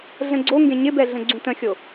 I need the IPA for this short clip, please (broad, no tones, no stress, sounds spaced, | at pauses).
ɮ ə̃ ɡ͡ǀ o ŋ ɡ ẽ ɲ ɪ b ɛ ɮ ə̃ ɡ͡ǀ ũ t ə̃ xʲ o